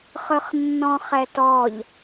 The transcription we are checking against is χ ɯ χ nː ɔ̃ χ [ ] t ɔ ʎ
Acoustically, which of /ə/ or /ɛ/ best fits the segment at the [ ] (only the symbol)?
ɛ